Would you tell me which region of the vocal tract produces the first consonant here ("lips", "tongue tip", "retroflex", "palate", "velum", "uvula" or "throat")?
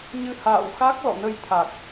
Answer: palate